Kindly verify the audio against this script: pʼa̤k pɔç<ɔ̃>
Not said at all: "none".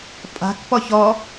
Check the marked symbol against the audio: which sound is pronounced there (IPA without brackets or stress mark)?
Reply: ɔ